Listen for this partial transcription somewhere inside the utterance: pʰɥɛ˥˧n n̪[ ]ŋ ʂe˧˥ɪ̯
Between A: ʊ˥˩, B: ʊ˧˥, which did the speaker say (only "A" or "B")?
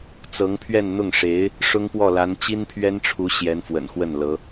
A